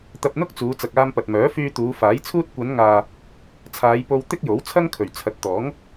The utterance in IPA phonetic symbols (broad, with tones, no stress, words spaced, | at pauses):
t̪ɐ˧p̚n̪ʊ˥k̚t͡suː˨˧ t͡sɐ˨k̚aː˧mpɐ˨t̚mœː˨˥ fyː˧t̪uː˨˧ faː˨˥jt͡sʰuː˥t̚ kʷɐ˨˧nŋaː˨ | t͡sʰaː˨˧jpo˧w t̪ɪ˥k̚jo˨˥w t͡sʰɐ˥ŋkʰɵ˨˩ɥ t͡sʰɐ˨˥t̚t̪ɔː˨˥ŋ